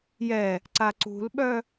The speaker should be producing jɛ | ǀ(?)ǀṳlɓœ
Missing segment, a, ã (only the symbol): a